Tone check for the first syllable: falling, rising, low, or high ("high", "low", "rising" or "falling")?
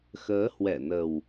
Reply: rising